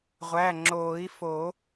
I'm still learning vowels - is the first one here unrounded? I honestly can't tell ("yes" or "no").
yes